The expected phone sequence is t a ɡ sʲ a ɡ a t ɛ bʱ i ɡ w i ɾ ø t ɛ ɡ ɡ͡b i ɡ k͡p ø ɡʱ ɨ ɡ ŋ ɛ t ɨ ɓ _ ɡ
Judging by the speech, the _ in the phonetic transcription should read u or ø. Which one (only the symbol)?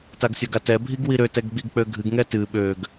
ø